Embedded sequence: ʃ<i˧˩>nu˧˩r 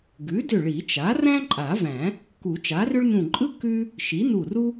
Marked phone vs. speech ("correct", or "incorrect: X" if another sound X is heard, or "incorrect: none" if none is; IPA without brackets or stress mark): incorrect: i˩˥